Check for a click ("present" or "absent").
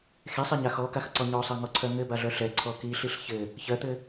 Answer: present